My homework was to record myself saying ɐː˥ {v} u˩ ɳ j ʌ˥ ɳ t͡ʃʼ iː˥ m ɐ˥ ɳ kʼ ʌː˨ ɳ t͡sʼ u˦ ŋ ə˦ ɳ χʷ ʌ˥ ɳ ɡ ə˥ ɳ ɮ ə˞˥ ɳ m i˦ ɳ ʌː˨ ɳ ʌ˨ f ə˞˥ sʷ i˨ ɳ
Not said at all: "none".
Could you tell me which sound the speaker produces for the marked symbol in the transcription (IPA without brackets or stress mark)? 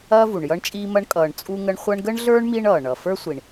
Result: v